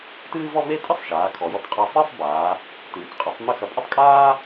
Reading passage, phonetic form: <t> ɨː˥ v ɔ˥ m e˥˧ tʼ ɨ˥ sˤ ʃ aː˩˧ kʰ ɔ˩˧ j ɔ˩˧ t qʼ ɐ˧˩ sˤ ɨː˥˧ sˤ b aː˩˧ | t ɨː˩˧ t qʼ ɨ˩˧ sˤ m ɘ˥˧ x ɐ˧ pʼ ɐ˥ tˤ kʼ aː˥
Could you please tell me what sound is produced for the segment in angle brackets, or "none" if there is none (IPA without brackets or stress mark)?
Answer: t